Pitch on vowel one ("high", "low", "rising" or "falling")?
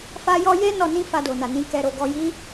high